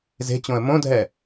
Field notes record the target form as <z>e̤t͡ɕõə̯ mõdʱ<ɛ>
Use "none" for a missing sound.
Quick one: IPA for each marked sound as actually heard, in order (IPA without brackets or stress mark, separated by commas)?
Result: z, ɛ